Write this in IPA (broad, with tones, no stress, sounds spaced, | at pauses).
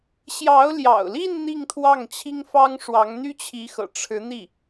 ɕ j ɑ˧˥ ʊ̯ l j ɑ̰˨˩ ʊ̯ l i˥˧ n n̪ i˥˧ ŋ t̪ʰ w ɑ˥˩ ŋ t͡ɕʰ i˥ ŋ f ɑ˥ ŋ ʂ w ɑ˧˥ ŋ n̪ y˥ t͡ɕʰ i˧˥ x ɤ̰˨˩ ʈ͡ʂʰ ɻ̩˧˥ n̪ i˥˩